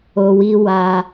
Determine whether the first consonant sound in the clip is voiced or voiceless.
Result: voiced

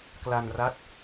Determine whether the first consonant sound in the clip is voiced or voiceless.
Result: voiceless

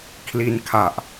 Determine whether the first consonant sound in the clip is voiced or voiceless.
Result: voiceless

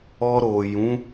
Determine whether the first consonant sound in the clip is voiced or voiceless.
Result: voiced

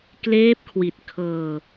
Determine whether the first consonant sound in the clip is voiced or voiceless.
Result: voiceless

